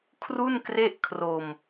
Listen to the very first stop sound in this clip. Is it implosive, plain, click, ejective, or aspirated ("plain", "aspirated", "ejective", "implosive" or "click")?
aspirated